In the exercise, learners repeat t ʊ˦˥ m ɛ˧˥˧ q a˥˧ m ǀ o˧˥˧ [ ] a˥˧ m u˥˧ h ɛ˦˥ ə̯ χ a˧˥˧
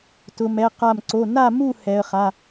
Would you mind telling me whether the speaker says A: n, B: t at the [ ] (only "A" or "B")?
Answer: A